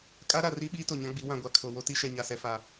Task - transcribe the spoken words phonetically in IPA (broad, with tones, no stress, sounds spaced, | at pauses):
kʼ a˦ ɾ a˨ r i˦ ɓ iː˦ t o˨ ɲ ã˦ ɡ͡b i˨˦ w ã˨ ɡʷ a˨ kʰ o˨ w o˦ t i˦ ʃ ɛ˨ ɲ a˨ s ɛ˨ f a˨